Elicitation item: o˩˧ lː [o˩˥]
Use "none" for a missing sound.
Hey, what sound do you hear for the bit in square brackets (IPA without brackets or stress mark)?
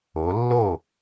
o˥˩